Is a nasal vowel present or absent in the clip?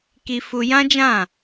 present